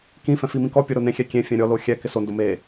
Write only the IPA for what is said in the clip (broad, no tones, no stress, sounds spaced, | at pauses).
k ĩ f ɛ̃ f i m ĩ k ɔ pʲ ʊ ɾ o n ẽ xʲ ɛ kʲ ẽ fʲ ɛ̃ ɾʲ ɔ l o xʲ ɛ k ɪ s o n d ʊ m e